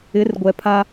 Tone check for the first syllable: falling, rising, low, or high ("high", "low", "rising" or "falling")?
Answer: rising